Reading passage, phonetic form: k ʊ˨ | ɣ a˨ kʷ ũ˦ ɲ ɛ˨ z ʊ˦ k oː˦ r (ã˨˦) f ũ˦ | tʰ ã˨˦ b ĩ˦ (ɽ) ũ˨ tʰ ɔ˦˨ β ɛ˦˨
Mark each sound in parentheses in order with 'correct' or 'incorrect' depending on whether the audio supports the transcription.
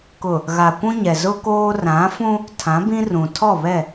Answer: correct, incorrect: r

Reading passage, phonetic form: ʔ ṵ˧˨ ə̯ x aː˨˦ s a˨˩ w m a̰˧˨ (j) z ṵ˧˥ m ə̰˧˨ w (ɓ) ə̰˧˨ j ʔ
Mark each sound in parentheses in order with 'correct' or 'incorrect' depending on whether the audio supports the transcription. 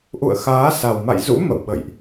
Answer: correct, correct

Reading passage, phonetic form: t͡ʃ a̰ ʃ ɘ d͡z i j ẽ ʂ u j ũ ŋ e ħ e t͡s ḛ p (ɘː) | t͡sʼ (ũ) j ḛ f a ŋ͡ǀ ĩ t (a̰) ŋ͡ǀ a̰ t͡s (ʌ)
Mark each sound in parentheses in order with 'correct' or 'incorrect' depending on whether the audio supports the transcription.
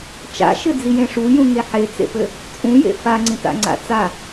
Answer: incorrect: ɘ, correct, correct, incorrect: a

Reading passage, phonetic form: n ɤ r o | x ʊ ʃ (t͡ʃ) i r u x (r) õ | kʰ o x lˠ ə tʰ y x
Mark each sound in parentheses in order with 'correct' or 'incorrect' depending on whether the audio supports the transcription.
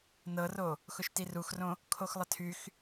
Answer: incorrect: t, correct

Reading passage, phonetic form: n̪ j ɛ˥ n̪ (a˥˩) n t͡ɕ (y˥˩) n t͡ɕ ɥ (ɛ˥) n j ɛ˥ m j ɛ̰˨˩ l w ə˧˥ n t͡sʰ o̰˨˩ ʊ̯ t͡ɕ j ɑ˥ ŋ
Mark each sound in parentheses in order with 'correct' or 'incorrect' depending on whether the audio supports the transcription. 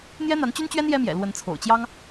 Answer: incorrect: a˧˥, incorrect: y˥, correct

